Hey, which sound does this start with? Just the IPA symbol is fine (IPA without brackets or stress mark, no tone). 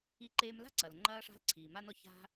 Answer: i